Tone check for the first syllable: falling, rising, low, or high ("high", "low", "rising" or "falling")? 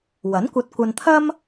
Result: rising